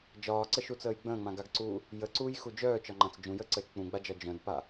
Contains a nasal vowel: yes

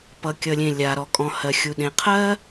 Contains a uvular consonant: yes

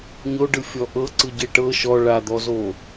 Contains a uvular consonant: no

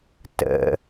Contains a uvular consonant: no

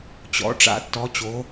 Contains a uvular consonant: no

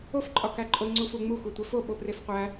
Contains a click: yes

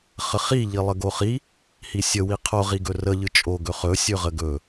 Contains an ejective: yes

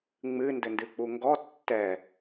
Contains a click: no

